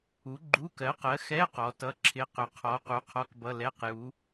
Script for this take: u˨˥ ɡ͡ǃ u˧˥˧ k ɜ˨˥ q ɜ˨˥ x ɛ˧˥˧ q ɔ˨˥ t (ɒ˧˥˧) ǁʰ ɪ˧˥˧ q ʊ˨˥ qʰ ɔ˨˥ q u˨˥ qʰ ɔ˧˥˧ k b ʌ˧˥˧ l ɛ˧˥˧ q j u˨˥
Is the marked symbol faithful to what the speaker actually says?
no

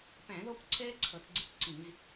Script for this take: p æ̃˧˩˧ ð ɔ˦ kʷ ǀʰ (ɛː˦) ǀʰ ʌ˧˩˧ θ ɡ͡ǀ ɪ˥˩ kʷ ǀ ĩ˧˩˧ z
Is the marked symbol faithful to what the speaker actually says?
yes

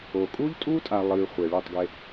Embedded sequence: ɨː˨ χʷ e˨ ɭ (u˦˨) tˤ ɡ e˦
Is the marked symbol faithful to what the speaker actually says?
yes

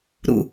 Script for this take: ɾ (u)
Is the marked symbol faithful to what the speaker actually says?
no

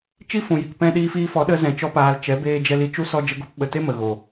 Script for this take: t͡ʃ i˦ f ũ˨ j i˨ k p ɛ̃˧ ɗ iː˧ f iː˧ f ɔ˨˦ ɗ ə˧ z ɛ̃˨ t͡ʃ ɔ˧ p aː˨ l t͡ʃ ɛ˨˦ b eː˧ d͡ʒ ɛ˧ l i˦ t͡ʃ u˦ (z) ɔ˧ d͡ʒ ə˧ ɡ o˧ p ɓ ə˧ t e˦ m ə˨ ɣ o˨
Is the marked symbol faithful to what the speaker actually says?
no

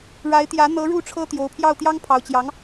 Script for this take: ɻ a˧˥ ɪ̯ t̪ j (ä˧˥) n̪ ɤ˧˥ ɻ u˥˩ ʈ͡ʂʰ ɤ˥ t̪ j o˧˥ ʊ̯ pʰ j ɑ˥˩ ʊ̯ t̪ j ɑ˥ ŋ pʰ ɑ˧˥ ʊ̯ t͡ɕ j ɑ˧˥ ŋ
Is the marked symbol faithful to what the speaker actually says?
yes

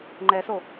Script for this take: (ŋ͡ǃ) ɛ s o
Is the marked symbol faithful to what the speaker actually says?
yes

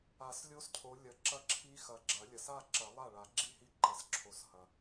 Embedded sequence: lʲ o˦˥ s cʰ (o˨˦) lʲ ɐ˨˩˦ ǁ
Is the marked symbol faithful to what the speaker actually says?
yes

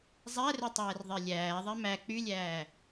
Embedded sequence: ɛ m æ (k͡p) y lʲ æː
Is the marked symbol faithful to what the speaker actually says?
yes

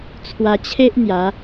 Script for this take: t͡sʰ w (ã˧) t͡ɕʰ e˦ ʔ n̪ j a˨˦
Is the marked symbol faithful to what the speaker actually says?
no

